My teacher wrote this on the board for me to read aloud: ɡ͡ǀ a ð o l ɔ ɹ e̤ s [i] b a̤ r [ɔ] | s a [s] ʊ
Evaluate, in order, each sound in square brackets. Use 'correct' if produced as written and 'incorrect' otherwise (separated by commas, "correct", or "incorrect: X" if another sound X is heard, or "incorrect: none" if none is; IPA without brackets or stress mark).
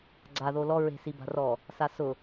correct, correct, correct